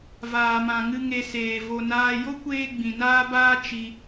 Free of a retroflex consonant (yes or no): yes